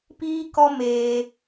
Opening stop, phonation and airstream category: plain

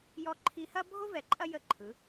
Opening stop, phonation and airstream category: click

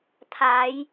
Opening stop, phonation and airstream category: aspirated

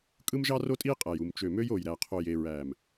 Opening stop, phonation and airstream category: ejective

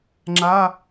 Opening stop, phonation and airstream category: click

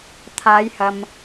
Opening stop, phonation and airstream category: aspirated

